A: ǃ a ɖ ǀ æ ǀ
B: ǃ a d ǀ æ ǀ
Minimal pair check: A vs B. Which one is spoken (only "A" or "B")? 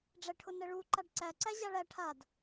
A